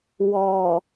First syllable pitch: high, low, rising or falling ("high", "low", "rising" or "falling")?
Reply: low